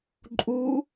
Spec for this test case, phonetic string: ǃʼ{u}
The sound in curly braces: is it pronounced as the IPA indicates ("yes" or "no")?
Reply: yes